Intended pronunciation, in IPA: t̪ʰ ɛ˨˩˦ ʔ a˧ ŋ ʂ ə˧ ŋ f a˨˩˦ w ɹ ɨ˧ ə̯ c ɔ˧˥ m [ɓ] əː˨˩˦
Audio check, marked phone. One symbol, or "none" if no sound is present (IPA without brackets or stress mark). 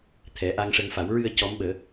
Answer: ɓ